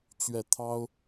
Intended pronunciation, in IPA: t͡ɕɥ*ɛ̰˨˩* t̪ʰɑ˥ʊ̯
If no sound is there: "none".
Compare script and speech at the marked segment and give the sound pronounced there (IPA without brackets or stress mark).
ɛ˥˩